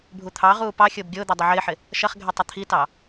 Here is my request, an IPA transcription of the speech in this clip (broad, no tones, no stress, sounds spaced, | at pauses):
bʱ u t̪ʰ ɑ ʁ uː p ɑ xʲ ʊː b ɡʲ ʊː d̪ ɛ dˤ ɪ ʕ ɪː ħ ɪ | ʃ ɐ χ ɡʱ ɛ tˤ ɐ t̪ʰ i t ɑ